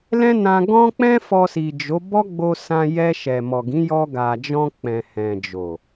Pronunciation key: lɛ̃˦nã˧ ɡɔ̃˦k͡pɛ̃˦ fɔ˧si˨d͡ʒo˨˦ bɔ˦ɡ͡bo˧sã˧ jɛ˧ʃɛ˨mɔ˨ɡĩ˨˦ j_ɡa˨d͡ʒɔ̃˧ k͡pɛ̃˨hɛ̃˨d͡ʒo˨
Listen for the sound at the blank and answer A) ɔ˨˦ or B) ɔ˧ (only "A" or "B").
B